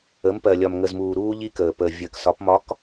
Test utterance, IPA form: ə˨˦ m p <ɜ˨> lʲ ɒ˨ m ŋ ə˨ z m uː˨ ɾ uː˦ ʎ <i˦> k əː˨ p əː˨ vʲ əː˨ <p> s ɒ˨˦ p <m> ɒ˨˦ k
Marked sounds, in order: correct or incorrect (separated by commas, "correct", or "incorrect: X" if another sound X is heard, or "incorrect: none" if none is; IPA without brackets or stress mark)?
correct, correct, incorrect: k, correct